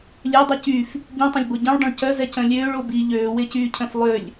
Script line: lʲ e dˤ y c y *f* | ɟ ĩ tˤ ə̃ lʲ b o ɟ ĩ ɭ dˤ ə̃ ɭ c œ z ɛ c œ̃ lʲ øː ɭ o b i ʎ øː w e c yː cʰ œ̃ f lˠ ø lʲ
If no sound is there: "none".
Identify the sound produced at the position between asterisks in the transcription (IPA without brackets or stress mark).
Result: f